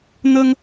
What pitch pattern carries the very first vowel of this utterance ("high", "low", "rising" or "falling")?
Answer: high